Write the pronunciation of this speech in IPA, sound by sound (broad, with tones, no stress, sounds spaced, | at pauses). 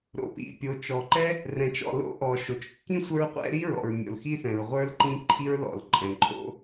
ɾ o̰˩ p ḭ˩ pʲ o˩ t͡ʃ ɔ˩ ǃ ɛ˥ | r ɛ̃˩ t͡ʃ ɔ̰˩ l o̰˥ ʔ ɔ˩ ʃ o˩ t͡ʃ kː ĩ˥ sʷ ə˞˥ ɹ qʷ ɛ̰˥ ɾ i˥ ɹ ɔ̰˩ ɹ mʲ o̰˩ l x i˥ θ ɛ̃˩ ɹ ʁʷ ə˞˥ l ǃ ĩ˥ ǃʰ i˥ ɹ l ɔ̰˩ l ǃʼ ɛ̃˩ ǃʼ o̰˥